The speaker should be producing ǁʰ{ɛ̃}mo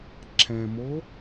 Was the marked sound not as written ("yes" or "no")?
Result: no